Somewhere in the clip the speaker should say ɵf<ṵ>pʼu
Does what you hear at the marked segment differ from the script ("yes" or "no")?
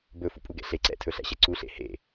no